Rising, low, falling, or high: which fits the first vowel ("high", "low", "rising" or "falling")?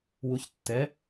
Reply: rising